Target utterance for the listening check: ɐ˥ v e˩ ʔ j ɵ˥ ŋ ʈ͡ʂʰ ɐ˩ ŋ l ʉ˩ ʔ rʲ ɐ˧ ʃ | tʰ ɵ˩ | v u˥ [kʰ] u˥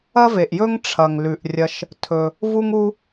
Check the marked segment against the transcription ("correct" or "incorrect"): incorrect